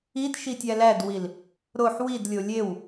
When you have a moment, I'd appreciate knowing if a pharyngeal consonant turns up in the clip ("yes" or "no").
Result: yes